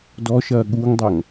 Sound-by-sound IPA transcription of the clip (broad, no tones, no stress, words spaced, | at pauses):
dɔʃɐː ɠuŋdˤɐŋ